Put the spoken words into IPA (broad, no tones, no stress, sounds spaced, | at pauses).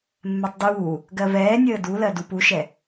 mː ɛ tˤ d uː | ɡ ɜ v ɛː nʲ əː d u l ɜ d u p u ʃ ɛ